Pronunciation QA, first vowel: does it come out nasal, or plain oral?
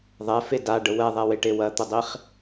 oral